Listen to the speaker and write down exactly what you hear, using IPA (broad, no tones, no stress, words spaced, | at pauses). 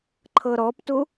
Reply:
ǃʰɤɾɔptu